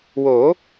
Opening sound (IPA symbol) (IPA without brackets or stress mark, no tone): w